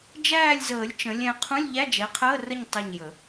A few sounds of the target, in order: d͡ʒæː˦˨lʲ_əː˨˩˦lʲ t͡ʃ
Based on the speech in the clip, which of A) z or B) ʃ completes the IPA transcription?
A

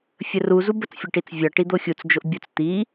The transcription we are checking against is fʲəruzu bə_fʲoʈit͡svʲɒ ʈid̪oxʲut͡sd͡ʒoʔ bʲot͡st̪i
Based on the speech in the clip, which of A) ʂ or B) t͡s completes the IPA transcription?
B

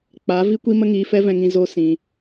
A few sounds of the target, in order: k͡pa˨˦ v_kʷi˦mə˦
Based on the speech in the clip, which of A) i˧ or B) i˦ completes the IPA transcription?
B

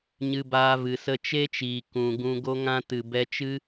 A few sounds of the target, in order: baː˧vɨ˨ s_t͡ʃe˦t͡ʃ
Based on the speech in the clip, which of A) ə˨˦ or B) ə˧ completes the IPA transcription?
B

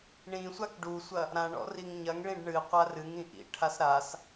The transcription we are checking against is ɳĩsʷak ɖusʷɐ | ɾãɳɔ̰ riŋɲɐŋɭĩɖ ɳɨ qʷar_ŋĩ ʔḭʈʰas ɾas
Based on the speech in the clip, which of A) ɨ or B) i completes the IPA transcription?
A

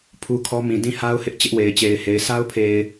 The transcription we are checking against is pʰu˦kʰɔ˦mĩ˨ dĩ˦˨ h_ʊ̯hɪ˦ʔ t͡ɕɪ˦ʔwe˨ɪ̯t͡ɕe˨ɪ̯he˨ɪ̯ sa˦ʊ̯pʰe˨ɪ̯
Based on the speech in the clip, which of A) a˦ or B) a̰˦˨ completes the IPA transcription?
A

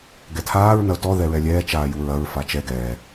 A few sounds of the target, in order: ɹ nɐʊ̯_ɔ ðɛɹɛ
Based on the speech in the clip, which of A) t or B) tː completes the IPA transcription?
A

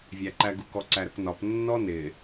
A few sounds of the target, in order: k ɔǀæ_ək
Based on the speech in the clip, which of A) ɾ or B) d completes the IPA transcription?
A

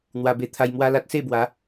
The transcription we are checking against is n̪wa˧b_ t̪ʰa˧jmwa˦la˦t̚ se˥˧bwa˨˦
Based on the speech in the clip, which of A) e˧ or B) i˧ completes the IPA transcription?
A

